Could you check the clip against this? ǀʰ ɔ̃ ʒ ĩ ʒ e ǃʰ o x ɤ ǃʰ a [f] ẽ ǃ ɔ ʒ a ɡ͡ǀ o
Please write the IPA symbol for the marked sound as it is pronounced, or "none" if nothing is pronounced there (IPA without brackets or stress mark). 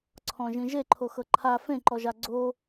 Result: f